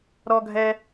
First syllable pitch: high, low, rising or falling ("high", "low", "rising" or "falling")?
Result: high